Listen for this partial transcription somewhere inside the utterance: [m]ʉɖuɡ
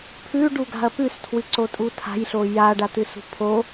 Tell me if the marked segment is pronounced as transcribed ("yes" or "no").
no